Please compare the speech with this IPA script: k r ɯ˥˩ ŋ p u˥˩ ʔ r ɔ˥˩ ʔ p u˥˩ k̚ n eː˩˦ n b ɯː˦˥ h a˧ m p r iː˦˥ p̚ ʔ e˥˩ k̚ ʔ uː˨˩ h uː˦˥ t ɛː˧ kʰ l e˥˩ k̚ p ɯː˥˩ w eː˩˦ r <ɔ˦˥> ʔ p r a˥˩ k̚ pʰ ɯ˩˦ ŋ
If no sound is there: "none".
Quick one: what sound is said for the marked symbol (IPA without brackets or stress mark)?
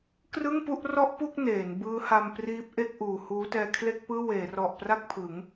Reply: ɔ˨˩